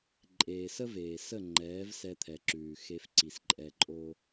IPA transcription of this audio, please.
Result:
ǃʼeː˨sə˦veː˨sə˦˨ ŋ͡ǃɛː˨˦v sɛ˧t̪ʰɛ˨ǁʉː˨ xe˧fǀi˨sǃʼɛ˧ǃʼo˦

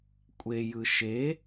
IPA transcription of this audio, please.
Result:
kʷʼejɯ ʃe

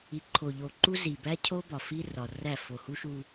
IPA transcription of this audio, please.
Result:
i˨ǃʰo˨ʎo˨ǃu˦ zi˨bæ˦cʰo˦ bɒ˨ fi˦rɒ˨ræ˦˨ fo˨hu˦ʃu˦

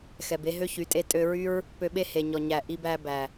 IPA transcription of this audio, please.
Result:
xɛ˨be˦ ɦø˦çy˨˦tʼe˧ tʼø˧ɹy˦ɹ | pø˧ɓe˦he˨ɲɔ˨ ɲæ˨ ʔi˧bæ˧ bæ˨

